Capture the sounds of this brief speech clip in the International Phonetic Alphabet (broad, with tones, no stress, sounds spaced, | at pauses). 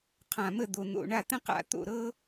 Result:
qʰ ã˨˩ m ə˥˩ d̪ o˨˩ n̪ o̰˨˩ ɳ a˥˩ t̪ ə̃˥ q a̰˧˩˧ t̪ o̰˨˩ ɾ ɤ˥